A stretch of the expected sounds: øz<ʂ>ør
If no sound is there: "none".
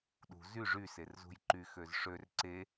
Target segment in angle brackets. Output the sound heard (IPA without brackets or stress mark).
ʂ